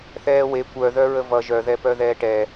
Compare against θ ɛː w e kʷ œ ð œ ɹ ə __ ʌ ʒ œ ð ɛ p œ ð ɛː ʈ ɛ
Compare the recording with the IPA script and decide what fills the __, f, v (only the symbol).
v